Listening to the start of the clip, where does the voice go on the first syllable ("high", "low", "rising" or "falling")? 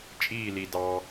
falling